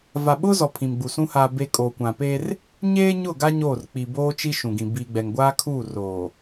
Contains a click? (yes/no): no